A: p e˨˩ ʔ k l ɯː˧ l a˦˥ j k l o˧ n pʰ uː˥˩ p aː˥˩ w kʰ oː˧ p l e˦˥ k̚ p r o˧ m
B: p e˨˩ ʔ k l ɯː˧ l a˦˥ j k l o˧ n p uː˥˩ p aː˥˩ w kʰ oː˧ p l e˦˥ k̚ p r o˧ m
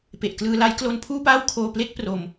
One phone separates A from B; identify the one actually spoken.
A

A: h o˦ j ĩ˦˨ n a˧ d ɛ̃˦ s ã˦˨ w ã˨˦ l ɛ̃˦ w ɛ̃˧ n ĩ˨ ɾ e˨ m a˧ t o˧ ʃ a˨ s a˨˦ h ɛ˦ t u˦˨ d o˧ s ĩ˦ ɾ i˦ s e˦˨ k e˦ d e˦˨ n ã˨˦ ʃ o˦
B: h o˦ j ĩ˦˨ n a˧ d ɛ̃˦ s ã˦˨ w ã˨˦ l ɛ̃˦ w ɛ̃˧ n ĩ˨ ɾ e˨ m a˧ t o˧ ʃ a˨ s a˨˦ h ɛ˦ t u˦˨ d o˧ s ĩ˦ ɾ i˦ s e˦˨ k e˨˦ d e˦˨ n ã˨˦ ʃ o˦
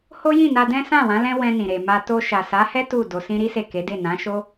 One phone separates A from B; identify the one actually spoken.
B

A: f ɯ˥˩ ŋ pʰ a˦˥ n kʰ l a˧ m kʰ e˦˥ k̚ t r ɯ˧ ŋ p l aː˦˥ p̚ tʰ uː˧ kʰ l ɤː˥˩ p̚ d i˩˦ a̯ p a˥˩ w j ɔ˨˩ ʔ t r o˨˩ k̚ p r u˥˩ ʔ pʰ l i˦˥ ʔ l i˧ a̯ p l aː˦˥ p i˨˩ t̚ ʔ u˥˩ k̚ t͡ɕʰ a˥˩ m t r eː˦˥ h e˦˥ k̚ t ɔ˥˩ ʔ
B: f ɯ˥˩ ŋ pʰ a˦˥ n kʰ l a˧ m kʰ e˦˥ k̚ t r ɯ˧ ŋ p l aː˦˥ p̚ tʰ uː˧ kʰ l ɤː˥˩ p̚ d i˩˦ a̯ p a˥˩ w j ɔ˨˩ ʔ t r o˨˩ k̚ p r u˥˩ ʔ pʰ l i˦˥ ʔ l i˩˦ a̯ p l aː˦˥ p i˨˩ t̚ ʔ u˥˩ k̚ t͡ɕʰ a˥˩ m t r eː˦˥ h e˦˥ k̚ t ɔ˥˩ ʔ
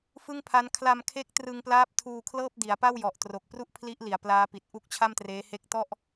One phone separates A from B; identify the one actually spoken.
B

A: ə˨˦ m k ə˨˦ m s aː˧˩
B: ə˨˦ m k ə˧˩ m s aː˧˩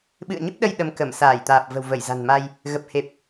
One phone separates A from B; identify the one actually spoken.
B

